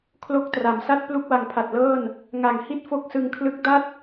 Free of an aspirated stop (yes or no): no